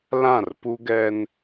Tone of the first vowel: falling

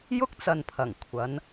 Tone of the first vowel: high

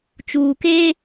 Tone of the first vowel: low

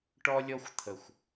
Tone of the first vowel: high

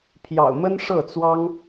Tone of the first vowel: low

